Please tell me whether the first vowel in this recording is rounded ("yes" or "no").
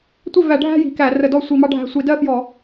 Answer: no